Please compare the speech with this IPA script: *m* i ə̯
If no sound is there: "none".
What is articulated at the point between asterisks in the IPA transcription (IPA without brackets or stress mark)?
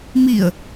m